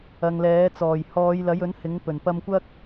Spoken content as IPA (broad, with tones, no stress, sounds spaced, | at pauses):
ɐ˨ ŋ l ɛː˨˥ t͡s ɔː˨˩ j h ɔː˨˧ j l ɐ˨˥ j ɵ˨˥ n h ɪ˨˥ ŋ p ɵ˨˩ n p ɐ˧ m kʷ ɐ˥ k̚